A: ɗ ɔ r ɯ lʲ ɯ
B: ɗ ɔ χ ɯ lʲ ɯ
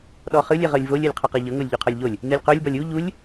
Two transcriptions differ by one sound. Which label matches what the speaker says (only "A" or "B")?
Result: B